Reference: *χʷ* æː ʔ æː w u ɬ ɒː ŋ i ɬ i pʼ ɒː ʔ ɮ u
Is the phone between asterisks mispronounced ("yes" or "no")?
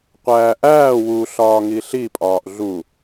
yes